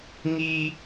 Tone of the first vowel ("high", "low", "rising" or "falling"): high